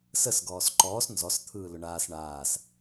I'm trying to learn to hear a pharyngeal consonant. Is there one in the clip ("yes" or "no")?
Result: no